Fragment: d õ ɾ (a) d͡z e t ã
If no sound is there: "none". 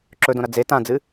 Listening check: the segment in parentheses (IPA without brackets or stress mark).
ɐ